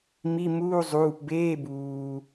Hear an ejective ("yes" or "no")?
no